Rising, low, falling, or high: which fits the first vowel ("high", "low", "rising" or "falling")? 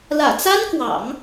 low